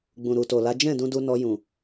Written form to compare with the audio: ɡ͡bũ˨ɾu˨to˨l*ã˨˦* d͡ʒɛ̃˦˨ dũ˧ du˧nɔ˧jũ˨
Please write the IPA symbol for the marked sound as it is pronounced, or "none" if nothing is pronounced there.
a˨˦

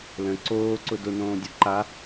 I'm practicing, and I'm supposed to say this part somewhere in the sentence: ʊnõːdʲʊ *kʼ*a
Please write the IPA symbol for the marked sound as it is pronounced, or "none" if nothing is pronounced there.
ǃ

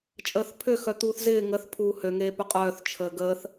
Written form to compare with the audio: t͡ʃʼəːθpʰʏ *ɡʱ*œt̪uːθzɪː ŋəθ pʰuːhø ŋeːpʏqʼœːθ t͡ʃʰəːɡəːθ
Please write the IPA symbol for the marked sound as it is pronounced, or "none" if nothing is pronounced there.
x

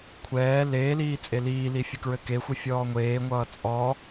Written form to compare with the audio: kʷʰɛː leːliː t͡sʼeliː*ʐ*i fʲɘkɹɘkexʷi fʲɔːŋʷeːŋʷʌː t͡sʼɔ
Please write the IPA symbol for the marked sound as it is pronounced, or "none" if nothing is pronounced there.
l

